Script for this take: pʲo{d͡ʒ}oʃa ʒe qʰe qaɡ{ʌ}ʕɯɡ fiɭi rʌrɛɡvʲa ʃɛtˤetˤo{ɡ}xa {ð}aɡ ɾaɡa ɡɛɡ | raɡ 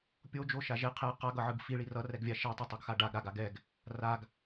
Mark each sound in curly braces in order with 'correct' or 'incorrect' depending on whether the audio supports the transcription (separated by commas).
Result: correct, correct, correct, incorrect